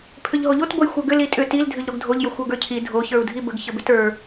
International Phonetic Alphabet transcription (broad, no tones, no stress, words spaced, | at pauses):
pʰʏʎɦoʎot bojxʷə˞ɡʏ litʼʏ til dʱʏʎɾoɡdʱoʎ jəxʷə˞ɡə˞cʰi dʱo çə˞u̯dʱibəɡ çəbʏtə˞